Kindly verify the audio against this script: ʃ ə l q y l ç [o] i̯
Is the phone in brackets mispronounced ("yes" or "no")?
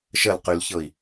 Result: yes